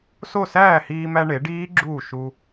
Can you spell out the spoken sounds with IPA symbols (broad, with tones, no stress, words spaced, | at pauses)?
so˥˩ sæː˥˩hiː˧mæ˧ ɳe˩˥ɖiː˦˥ɡ͡ǁuː˥˩ ʃu˧